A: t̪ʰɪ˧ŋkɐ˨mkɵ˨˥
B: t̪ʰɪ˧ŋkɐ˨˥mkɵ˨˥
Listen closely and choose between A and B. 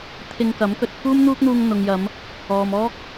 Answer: B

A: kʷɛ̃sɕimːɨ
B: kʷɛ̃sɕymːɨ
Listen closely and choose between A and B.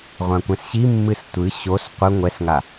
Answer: A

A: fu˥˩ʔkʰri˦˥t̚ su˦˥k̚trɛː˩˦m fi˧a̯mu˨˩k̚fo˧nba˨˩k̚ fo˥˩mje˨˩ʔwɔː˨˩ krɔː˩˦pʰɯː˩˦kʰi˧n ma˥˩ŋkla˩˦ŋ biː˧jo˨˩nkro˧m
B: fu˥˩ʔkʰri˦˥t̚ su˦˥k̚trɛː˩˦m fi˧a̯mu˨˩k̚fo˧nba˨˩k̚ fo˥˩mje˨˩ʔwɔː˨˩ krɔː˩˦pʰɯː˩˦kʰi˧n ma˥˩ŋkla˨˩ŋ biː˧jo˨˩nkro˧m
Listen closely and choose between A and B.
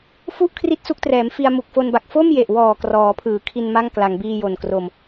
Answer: A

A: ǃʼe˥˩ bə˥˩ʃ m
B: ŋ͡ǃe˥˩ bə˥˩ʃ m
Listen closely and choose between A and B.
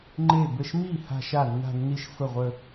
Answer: B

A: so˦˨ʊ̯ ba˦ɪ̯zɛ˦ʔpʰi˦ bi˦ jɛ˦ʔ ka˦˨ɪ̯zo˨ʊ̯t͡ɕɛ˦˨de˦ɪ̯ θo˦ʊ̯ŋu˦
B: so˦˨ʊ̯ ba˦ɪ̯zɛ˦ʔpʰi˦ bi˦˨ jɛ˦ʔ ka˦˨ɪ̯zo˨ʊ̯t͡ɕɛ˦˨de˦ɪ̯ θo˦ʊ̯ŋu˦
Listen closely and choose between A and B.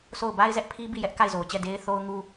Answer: B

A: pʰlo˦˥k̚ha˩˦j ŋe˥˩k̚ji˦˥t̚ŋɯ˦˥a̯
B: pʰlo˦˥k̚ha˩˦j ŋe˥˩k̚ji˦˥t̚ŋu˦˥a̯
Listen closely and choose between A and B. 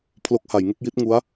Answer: B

